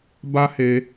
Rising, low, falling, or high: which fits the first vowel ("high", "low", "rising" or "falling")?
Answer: high